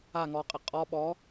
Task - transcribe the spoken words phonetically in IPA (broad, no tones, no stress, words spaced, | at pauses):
a ŋɔqʼɛ qʼɔ ɓɔ